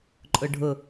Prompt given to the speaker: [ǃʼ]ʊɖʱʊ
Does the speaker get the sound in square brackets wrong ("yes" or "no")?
no